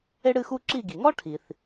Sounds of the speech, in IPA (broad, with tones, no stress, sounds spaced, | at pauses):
e˥ ɽ ɨ˥˧ x u˥ ǁ i˥˧ ɡ i˩ ŋ ɔ˥ ʈʰ i˩ θ